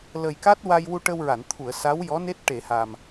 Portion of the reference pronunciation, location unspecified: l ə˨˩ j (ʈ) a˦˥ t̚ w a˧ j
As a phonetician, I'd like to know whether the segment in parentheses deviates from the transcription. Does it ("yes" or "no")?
yes